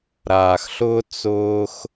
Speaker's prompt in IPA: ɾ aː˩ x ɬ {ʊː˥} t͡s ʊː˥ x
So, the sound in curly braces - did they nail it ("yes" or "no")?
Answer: yes